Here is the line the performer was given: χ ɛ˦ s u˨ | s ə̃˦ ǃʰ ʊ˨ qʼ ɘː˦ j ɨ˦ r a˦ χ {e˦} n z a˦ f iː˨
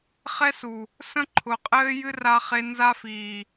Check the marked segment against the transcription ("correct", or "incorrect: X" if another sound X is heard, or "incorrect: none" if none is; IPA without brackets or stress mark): correct